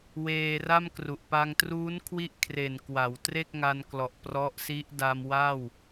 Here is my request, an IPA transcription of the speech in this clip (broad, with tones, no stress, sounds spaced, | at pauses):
w eː˧ r a˥˩ m k r u˨˩ ʔ p a˧ ŋ t r uː˦˥ n kʰ w i˥˩ ʔ kʰ r e˨˩ n k w a˩˦ w t r e˥˩ k̚ ŋ a˧ n k l ɔ˨˩ ʔ p r ɔ˦˥ ʔ s i˦˥ ʔ d a˧ m w a˥˩ w